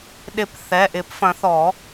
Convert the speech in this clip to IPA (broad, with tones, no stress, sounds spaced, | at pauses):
ɗ ɪ˨˩˦ p θ ɛ˩˧˩ ʔ ɪ˨˩˦ p f ɐ̃˨˩˦ θ ɔ˨˩˦